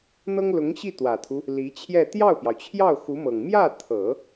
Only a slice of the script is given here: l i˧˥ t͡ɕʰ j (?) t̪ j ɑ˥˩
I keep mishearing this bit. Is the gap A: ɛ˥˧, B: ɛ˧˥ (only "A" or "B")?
A